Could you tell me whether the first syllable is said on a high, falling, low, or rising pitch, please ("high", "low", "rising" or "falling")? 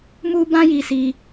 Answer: high